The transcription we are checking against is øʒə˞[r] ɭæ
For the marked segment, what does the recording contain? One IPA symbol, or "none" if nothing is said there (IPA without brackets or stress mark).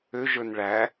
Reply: n